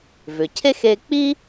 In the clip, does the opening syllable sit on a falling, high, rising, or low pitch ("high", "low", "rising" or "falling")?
low